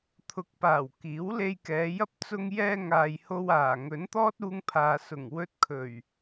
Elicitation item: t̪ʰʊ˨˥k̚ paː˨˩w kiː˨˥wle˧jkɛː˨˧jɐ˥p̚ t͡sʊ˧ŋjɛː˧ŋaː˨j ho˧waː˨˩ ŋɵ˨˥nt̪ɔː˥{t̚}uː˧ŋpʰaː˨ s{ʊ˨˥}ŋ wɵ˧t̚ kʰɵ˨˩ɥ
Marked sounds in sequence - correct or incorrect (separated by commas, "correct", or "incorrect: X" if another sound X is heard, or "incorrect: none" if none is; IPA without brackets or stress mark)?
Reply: correct, incorrect: ʊ˨˩